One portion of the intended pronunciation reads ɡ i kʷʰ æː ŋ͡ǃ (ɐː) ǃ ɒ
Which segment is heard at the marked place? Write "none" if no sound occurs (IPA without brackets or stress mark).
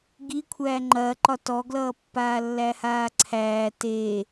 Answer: ɐː